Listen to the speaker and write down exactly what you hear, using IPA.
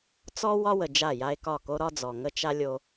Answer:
t͡s ɔ˦ w ɒ˦ w ə˨ d͡ʒ a˦˨ j a˦ e̯ k ɒ˦˨ k o˦ ɾ ɒ˦ d͡z ɔ˨ ŋ ə˦ t͡ʃ a˦ lʲ o˦

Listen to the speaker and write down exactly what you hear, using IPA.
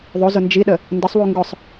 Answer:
ðˤ o z ʊ n d͡ʒ i ɗ ə | n d ə sˤ w u ŋ ɡ ʊ sˤ

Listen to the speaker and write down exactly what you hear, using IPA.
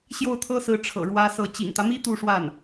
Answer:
ɕ j o˥˩ ʊ̯ t̪ʰ ɤ˥ s ɹ̩˧˥ ʈ͡ʂʰ ɤ̰˨˩ ɻ w ä˥ s ɤ˥˩ t͡ɕ ḭ˨˩ ŋ t̪ ä˦ m i˥ t̪ u˥˧ ʂ w a˥˩ n

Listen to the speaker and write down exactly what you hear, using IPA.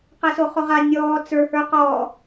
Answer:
q ɛ s o χ o ʁ a nʲ ɔː t͡s ə˞ h ə˞ q ɔ

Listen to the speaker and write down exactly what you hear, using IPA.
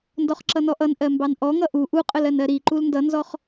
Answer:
n d ɔ χ ǁ ʌ n ɔ ʔ ʌ n ʔ ɜ m b ɑ n ʔ ɔ ŋ ʌ ʔ u ʔ u qʼ ə l ɜ n ɜ ɾ i ǃ u l n d ʌ n z ɔ χ

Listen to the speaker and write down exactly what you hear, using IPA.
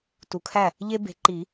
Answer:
t u˨ kʰ æ˥˩ | ʎ e˦ b e̤˨˦ ǃ i˨˩˦

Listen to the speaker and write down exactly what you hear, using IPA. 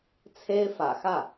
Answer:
t͡sʰ e˥ ɪ̯ f ä̰˨˩ x ä˥˩

